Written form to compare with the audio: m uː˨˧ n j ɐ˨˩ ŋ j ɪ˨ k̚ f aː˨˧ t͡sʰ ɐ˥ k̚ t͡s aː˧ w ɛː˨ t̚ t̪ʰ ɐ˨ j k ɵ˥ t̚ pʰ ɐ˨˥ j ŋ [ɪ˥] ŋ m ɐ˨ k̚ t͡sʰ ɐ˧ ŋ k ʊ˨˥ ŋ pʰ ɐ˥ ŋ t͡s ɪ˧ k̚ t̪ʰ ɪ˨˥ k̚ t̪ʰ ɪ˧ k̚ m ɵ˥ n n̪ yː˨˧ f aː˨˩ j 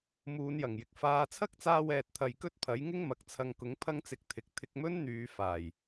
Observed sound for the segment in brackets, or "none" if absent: ɪ˥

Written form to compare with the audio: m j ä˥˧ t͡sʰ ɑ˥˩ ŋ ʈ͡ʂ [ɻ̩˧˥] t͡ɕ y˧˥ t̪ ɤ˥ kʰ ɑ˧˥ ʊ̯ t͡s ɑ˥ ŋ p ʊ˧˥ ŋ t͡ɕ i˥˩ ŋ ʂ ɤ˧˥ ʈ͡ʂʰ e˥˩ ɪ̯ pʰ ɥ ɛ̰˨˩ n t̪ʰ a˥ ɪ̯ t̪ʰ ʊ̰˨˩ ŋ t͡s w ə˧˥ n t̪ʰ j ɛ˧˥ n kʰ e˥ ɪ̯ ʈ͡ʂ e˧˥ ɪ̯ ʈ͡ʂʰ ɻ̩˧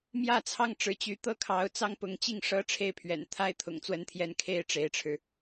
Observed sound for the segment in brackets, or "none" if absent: ɻ̩˧˥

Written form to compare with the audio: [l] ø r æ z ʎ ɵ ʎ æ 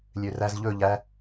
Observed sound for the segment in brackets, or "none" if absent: lʲ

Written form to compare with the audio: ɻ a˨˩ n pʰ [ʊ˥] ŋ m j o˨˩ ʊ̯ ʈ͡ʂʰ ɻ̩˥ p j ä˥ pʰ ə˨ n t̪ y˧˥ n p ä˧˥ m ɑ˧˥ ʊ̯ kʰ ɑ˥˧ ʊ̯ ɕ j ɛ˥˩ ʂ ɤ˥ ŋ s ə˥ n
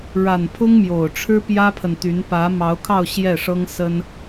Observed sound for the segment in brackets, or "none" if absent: ʊ˥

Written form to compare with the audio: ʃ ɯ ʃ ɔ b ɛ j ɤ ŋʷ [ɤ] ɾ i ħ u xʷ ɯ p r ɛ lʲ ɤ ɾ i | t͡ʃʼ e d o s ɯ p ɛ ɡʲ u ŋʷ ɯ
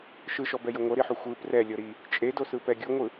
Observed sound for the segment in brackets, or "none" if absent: ɤ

